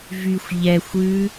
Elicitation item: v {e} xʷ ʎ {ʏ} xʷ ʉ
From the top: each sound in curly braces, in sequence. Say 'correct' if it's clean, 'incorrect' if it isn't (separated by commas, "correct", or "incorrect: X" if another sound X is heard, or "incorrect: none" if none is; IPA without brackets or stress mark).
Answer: incorrect: y, incorrect: ɛ